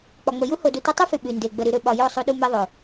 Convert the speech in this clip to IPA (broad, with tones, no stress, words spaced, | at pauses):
k͡pɒ˨ŋ͡mə˨ju˦ ho˧du˧tɒ˦ tˤø˦fy˨ ɓy˨nde˨ ɡ͡bə˨ ɾy˨ɾø˨ɓɒ˨ jo˦˨sˤu˧ɗu˧ me˧ðˤo˨